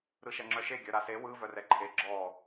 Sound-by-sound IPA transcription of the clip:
ɾ ɯ ʃ ɛ ŋ͡ǁ œ ʃ e ɡʲ œ ɾ a s e w ɯ v œ r ɛ ǃʰ e ɡ͡ǁ ɔ

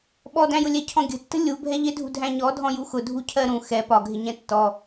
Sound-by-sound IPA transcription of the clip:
ɓ ɔ d æ̃ j ʊ lʲ ɛ cʰ ɔ̃ ɡʲ ə̤ tː ə̤ lʲ u bʱ ɛ ʎ ɪ dʱ ṳ dʱ æ̃ ɲ ɔ dʱ ɔ̃ j u x ʊ dʱ u cʰ ɜ ɾ ũ x ɛ p ɒ ɡʱ ɪ ɲ ɛ̃ tː ɔ

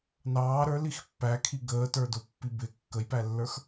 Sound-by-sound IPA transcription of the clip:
n ɑː ɾ ə˞ l i x pː æ kʰ i ɡ əː t ə˞ d ʊ pː i b ɪ kː ə j p æ lː ə˞ x

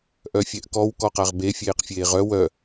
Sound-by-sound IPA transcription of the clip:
ʔ œ fʲ ɛ ʔ k ɔ w k ɔ q a ʁ b e fʲ eː q fʲ eː ʁ œ w œ

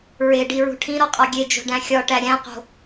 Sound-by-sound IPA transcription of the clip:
ɹ e ɖ i ɹ ṳ ʈʰ ĩ ɾ ɒ qʼ ɒ ɡʲ e d͡ʒ o̤ ɖ æ̃ xʲ ɒ ʈ æ ɾʲ æ̃ q o̤

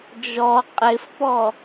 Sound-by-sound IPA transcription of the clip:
d͡ʒ ɔ qʼ ɪ f p ɔ

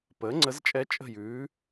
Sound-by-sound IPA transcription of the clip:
p əː˩˥ ŋ͡ǀ ə˧˥ z t͡ʃʼ ɛ˧˥ t͡ʃʼ ə̤˥˩ j ʉː˩˥

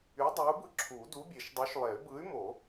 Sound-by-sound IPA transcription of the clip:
y˨˥ dˤ y˨˥ u̯ b ɯ˦ ǁʰ u˨˩˦ d u˨˥ bʲ e˨˩˦ ʃ dˤ y˨˥ ʃ lˠ e˨˩˦ y̯ b ɯ˨˥ y̯ m o˨˩˦

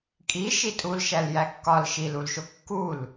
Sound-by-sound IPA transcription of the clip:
kʼ i ʃ i tʼ u l ʃ æ l j æ kː ɒ l ʃ i l u l ʃ o kː u l

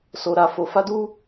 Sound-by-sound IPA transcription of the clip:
s o˧ ɾ a˧ f o˧ f a˦ d u˦

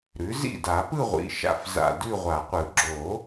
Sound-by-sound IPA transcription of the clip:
ɾ ʉ˩˥ z ḭ˥˩ d a˨˩˦ p ɯ˥˧ ʁʷ ḭ˩˧˩ ʃ a̰˥˩ f z a̰˧˩ d ʉ˥˧ ʁʷ a˨˩˦ qʷ ɯ˨˩˦ ɡ͡ǁ o˨˩˦

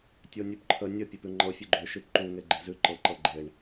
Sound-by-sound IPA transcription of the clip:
tʲ o nʲ ʉ p ǃʰ ə nʲ ə pʲ e p ʉ ŋ͡ǃ ɤ fʲ ʉ ɡ͡ǃ ø ʃ ʉ p ǃ u ŋ e ɡ͡ǃ e z ʉ ǃ ɤ ǃ ɤ ɡ͡ǃ e ɳ

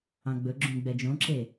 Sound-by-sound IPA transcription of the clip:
ɑ̃ ɡ͡b ɵ ɡ͡ǁ ũ ɡ͡b ɛ d͡ʒ õ ǁ e

